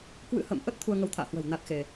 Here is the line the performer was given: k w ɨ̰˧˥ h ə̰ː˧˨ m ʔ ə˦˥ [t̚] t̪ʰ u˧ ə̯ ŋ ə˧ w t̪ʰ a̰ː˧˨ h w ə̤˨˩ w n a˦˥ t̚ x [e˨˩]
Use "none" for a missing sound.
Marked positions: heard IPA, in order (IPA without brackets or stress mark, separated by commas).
t̚, e˧